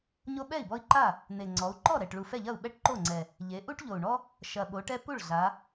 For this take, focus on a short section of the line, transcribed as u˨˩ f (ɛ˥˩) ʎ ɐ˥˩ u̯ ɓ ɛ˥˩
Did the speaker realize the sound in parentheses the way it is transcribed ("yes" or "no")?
yes